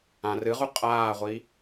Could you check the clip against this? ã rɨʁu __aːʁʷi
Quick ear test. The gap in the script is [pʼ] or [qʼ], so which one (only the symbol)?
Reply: qʼ